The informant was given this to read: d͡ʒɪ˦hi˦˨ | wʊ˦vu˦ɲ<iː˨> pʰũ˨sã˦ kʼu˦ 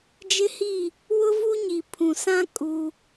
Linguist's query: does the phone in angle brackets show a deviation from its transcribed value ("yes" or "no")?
yes